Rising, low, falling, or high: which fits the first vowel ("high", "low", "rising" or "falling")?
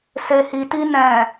low